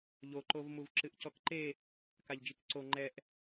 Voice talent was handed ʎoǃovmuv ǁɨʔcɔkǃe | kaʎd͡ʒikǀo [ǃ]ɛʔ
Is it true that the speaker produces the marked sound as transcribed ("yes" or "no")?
no